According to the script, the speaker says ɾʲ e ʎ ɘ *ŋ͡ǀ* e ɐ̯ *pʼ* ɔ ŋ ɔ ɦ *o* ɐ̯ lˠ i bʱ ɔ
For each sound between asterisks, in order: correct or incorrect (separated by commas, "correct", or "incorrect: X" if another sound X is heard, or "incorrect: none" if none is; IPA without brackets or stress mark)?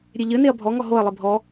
incorrect: n, incorrect: bʱ, correct